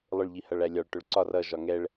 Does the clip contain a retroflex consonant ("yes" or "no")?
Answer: yes